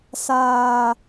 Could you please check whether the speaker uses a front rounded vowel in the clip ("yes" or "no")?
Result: no